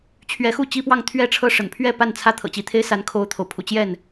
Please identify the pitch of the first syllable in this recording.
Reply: rising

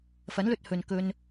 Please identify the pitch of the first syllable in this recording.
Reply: rising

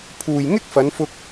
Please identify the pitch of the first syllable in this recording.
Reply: low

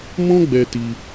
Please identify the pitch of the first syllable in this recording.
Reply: high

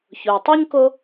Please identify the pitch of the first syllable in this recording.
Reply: low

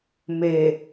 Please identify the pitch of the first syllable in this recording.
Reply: low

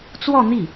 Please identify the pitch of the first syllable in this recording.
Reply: falling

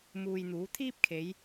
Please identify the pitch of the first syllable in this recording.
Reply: low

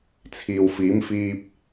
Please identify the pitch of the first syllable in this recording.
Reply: low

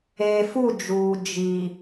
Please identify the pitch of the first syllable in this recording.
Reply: low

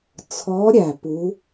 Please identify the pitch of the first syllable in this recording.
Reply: rising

